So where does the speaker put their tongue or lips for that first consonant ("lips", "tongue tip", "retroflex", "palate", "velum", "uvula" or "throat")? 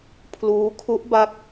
lips